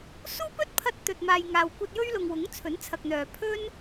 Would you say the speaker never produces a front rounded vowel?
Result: no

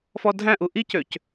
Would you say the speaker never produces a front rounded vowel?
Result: no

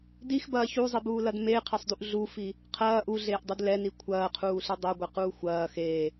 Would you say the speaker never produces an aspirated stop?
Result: no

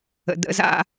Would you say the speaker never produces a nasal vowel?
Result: yes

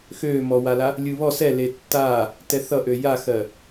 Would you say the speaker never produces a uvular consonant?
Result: yes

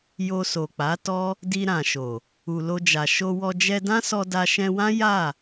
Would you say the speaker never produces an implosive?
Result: yes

